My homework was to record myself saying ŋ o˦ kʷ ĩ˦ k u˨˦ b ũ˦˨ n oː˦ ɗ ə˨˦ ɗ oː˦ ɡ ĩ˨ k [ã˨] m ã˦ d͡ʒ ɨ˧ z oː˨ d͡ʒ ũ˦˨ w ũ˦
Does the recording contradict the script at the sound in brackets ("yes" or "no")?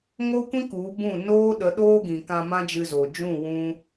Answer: yes